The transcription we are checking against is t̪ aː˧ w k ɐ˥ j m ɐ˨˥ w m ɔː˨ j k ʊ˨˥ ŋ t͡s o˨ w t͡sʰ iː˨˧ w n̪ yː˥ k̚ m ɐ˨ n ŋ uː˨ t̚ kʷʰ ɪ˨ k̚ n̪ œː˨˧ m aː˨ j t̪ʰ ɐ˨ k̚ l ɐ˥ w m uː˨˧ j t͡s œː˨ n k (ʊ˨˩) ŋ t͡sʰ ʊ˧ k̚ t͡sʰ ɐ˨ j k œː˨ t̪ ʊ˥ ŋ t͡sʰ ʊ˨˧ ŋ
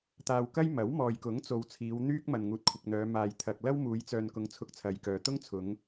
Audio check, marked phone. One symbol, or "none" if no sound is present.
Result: ʊ˨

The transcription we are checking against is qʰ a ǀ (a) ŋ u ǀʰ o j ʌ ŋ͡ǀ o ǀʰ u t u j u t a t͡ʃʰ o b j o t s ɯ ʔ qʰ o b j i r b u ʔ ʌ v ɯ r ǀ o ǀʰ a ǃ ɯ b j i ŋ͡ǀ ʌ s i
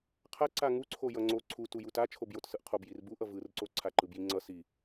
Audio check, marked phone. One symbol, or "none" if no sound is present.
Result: a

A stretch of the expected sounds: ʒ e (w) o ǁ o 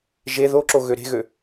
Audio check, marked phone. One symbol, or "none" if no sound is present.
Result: ð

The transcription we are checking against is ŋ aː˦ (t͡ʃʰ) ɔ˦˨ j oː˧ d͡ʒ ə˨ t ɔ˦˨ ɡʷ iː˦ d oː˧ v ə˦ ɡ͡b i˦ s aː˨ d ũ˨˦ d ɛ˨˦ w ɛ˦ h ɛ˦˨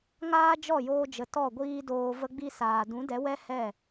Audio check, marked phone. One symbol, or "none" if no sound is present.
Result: d͡ʒ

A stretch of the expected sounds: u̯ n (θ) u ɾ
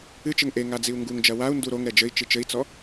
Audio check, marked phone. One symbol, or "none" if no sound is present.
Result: d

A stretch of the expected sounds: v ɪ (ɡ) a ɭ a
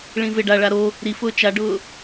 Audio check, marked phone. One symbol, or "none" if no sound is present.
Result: ɖ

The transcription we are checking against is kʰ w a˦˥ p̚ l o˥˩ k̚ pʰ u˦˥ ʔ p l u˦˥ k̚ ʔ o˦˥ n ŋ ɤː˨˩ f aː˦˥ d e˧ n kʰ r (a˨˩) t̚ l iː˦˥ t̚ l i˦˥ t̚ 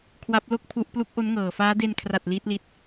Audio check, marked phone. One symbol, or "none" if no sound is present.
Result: a˨˩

